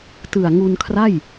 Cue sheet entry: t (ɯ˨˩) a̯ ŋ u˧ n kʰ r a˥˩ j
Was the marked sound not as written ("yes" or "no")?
no